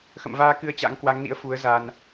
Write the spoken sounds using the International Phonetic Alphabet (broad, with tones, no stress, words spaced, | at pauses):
xə̰˧˨mvaː˧ kɨ˧ə̯t͡ɕa̰˧˥ŋkwa˨˦ŋnḭ˧˥ə̯ fu˨˦ə̯ za˧n